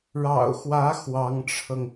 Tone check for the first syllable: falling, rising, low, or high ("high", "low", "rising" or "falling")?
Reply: low